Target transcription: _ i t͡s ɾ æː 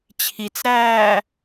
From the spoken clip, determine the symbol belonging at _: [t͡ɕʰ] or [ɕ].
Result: t͡ɕʰ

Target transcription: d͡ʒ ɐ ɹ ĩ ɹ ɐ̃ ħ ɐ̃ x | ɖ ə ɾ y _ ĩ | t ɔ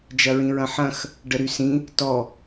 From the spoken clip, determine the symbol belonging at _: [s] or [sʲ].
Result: s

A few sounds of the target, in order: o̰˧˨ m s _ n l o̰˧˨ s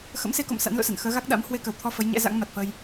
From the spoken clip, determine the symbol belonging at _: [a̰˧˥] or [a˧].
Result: a̰˧˥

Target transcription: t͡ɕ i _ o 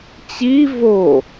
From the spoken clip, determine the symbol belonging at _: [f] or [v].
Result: v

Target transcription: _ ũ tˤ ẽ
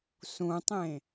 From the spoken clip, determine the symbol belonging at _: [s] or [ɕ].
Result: s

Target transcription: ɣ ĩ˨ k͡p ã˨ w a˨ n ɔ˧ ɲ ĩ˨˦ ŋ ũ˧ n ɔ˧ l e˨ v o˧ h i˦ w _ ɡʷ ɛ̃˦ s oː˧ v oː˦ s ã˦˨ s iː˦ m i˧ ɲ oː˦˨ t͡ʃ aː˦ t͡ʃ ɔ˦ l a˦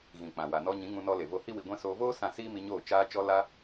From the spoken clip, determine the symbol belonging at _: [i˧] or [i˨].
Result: i˧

